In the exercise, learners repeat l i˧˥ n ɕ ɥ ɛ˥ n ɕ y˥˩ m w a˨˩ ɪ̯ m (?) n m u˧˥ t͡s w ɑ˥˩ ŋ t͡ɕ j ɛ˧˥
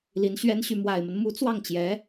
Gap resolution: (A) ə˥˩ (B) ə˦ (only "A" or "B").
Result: B